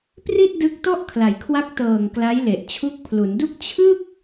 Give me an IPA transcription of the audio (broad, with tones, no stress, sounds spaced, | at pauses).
p r i˥˩ t̚ d ɯ˦˥ k̚ t ɔ˥˩ ʔ kʰ l a˨˩ j kʰ w a˦˥ k̚ t ɤː˨˩ ŋ k l a˦˥ j l e˨˩ ʔ t͡ɕʰ u˦˥ k̚ pʰ l u˩˦ n d u˥˩ k̚ t͡ɕʰ ɯ˥˩ k̚